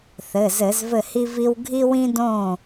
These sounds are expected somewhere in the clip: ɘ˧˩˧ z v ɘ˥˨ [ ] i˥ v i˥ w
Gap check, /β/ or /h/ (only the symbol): h